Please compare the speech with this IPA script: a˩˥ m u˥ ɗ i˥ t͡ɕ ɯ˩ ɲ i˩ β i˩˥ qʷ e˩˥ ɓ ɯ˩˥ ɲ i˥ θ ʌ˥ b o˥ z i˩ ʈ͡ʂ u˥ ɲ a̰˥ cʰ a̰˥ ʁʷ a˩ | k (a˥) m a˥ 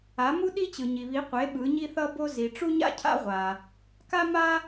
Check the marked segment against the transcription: correct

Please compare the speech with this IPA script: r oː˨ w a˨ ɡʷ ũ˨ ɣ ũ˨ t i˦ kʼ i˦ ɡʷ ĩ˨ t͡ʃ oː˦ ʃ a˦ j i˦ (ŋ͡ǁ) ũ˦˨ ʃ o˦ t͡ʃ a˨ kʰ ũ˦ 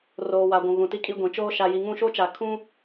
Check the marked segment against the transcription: incorrect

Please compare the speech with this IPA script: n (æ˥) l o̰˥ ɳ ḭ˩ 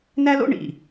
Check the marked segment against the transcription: correct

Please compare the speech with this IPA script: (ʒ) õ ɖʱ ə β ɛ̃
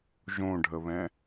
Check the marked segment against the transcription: correct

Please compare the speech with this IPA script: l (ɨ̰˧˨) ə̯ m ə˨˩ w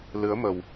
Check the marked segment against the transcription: incorrect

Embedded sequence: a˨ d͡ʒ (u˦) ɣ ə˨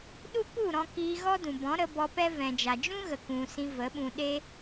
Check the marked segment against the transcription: incorrect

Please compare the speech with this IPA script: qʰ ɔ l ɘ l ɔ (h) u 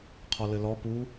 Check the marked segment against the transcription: incorrect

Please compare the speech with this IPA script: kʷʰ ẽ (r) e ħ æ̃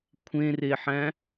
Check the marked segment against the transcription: correct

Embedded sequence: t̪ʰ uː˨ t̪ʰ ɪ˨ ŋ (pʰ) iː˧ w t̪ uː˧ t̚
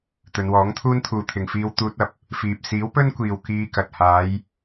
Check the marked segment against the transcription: incorrect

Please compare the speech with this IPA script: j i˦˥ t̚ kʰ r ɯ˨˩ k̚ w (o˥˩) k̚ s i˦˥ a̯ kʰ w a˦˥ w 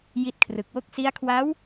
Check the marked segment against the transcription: correct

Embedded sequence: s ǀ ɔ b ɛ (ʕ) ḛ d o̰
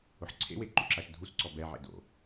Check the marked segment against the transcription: correct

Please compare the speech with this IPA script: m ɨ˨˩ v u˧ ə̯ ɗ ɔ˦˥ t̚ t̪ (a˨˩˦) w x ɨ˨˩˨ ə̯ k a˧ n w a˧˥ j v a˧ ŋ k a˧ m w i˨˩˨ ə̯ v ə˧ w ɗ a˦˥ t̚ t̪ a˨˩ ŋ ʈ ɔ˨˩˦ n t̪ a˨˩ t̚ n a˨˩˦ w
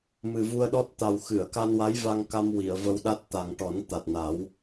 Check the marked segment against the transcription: incorrect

